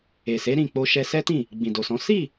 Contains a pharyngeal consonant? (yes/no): no